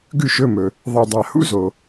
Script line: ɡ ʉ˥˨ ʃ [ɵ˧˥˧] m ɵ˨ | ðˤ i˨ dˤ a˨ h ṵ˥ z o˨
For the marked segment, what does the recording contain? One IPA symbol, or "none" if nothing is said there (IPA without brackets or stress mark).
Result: ɵ˧˥˧